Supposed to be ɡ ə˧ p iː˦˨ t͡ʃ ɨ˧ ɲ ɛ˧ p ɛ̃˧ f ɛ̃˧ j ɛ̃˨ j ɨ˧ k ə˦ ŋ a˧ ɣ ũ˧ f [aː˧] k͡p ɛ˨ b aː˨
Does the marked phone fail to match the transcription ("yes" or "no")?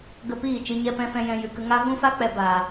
yes